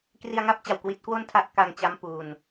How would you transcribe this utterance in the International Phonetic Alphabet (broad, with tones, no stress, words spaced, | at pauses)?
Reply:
kri˧a̯ŋa˦˥p̚t͡ɕa˨˩w kwi˦˥t̚kwo˥˩n tʰa˦˥ʔka˧ŋt͡ɕa˦˥mpuː˧n